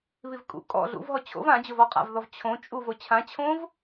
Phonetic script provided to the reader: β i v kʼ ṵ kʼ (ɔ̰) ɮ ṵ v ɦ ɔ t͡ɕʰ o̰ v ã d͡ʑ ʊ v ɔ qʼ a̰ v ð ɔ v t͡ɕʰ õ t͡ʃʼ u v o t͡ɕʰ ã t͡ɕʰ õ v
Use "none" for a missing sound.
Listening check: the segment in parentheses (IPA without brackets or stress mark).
ɔ̰